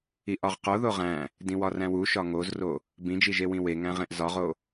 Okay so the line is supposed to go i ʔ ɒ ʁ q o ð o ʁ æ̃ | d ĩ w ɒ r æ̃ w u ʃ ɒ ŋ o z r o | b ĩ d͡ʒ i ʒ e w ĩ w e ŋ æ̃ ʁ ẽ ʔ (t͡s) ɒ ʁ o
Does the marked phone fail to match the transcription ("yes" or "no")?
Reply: yes